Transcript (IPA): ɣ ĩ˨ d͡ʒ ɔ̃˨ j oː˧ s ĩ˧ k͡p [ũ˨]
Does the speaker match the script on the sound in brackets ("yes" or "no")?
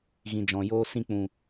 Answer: yes